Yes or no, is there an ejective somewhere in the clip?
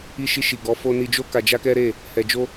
no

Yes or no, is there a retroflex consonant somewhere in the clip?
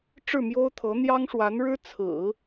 yes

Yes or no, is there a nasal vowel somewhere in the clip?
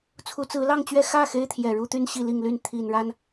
no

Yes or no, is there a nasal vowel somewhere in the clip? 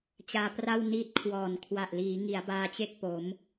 no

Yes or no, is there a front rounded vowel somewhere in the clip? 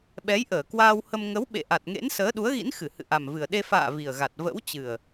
no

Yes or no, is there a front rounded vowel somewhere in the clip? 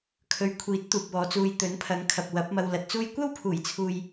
no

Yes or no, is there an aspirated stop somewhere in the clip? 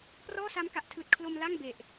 yes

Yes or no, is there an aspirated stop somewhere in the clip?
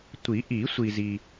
no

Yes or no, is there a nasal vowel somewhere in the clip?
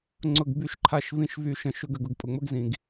yes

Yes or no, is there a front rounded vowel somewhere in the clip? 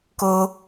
no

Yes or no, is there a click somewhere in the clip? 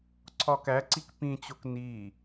yes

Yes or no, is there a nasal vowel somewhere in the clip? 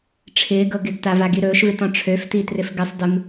yes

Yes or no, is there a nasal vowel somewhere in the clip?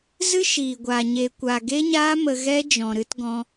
yes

